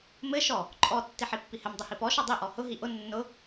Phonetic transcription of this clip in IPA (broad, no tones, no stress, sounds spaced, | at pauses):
m ɘ ʃ ɔ | ǃʼ ɔ tː i ħ i pː i h ɘ m dˤ ɘ h i p ɔ ʃ ɔ dˤ i ʔ ɔ h ʊ ɦ i ʔ ʊ nː ʊ